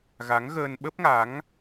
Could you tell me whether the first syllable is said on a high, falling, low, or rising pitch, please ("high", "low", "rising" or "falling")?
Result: rising